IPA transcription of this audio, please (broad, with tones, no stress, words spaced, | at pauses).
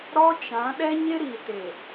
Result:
ɾɔ˦t͡ʃã˨˦ ɗɛ˦ɲɪ˦ ɾi˨te˨